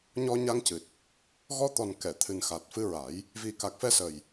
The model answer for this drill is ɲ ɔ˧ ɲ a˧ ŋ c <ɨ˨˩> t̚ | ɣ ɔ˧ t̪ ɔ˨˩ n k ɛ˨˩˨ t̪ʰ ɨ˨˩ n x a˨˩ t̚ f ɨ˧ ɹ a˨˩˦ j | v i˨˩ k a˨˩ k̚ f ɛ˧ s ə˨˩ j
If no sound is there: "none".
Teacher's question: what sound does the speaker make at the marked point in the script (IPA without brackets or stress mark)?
ɨ˨˩